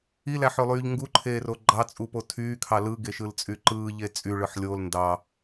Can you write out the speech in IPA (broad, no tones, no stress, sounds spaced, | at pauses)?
i l æ ħ ø lˠ yː ʎ ŋ ɡ u ǃʰ eː r o ɡ͡ǃ ɑ t͡sʼ u p o tʰ yː kʰ ɑ l ɯ ɡ e ʃ ɯ l t͡sʼ y ǃ ɯː ʎ e t͡sʼ y ɭ ɯ ħ lʲ o l n d ɑ